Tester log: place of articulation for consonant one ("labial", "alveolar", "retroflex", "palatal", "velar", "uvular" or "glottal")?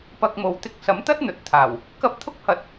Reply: labial